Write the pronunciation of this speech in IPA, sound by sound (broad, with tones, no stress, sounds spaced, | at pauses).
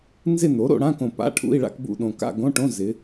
n z ɪ˥˧ n o˩˥ ɾ o̰˩˧ ɽ ã˧˥˧ k õ˨˩ p a̰˧˥˧ ʈʰ ṵ˧˥˧ i̯ ɭ a̰˥˧ k b ṵ˥˧ ɗ õ˨˩ k a̰˥˧ ɡ õ˧˥˧ ʈ õ˧˥˧ z ɪ˩˧